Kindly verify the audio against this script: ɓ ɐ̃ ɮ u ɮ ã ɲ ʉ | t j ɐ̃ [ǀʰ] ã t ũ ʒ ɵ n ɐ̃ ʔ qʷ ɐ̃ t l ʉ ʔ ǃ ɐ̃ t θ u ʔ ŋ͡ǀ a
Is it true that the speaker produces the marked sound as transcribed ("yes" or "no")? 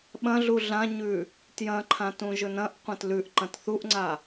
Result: no